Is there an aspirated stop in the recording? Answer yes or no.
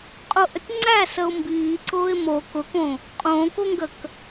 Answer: no